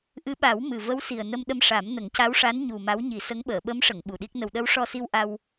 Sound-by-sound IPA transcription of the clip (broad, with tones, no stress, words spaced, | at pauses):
ʔɨ˧˥ɓa˨˩˦w mɨ˨˩ və˧˥wsi˨˩ə̯ nə˧mɗə˧m ʂa˨˩˦mnə˨˩˦ŋca˧˥wʂa˧˥n ɲu˨˩ ma˧˥wɲi˨˩˦sə˧˥ŋ ɓəː˨˩˨ɓə˧˥mʂə˨˩˨ŋ ɓu˨˩ɗi˦˥k̚nə˧w ɗə˧˥wʂɔ˧si˧w ʔa˧w